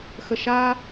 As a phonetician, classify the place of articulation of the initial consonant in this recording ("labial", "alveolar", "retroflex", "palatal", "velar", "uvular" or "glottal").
velar